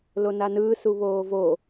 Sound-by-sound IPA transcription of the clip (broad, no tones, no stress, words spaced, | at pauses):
lonanɯː suβoːvo